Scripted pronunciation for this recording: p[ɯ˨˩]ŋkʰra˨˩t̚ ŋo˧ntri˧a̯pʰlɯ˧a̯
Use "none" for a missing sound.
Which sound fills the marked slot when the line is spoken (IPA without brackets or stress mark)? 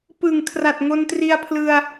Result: ɯ˨˩